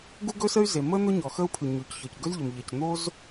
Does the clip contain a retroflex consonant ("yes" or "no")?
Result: no